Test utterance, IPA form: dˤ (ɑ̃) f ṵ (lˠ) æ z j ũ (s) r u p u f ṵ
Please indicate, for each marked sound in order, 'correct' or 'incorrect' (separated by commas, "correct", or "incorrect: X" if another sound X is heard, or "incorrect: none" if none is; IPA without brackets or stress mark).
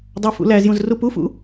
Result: incorrect: ɑ, incorrect: l, incorrect: z